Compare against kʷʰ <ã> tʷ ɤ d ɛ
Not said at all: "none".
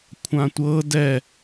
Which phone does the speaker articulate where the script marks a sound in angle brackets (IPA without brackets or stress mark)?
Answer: ã